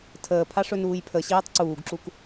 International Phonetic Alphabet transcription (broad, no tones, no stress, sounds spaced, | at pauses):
tʰ əː pʰ a ʂ ɵ n uː j pʰ ə ɕ iː tˤ ǀ uː ɡ ǁ u k